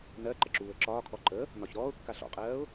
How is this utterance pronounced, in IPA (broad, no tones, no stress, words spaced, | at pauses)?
nɜ ǃəǁuːə̯ǁɒːkʰɔ ǃə | nɒçɾɔːʊ̯kːa ɬɔ̰qʼɜːʊ̯